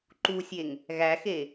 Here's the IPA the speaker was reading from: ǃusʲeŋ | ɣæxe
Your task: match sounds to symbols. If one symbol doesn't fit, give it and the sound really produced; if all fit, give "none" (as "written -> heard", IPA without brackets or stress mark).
none